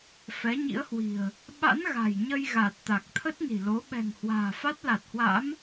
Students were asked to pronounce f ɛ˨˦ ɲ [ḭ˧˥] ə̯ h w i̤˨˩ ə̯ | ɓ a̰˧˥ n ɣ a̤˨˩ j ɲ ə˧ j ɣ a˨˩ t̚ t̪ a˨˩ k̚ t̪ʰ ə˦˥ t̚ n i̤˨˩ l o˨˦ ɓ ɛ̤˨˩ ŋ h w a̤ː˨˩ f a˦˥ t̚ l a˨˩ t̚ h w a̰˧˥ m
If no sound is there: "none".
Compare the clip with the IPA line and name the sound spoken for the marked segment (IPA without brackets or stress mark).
ḭ˧˥